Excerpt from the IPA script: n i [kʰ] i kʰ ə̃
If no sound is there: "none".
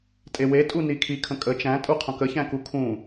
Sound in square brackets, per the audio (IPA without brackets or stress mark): kʰ